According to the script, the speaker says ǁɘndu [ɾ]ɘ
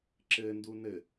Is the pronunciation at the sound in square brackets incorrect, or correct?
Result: incorrect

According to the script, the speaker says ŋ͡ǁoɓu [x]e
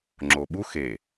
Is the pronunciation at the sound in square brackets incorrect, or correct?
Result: correct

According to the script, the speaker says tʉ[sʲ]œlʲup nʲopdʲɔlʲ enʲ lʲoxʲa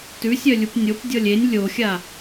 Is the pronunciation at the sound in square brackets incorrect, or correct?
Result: correct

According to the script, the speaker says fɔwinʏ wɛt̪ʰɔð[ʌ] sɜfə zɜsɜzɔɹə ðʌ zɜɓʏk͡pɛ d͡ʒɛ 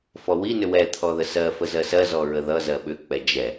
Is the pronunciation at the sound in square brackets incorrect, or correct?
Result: incorrect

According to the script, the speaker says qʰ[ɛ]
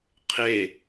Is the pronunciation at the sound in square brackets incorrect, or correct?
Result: incorrect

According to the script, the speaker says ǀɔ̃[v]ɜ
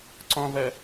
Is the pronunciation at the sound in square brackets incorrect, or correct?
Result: correct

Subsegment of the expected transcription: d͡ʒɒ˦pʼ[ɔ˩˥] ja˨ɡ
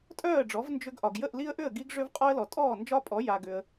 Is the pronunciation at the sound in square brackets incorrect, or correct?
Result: correct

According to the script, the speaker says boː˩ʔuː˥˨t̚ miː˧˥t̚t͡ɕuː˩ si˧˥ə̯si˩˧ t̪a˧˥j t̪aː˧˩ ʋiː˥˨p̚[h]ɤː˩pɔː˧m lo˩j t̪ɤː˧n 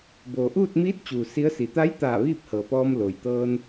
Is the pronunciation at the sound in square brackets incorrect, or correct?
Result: correct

